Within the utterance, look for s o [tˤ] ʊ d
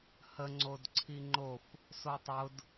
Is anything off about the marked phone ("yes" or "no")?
no